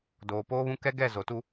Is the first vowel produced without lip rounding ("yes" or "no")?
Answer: no